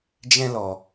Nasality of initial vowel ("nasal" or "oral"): nasal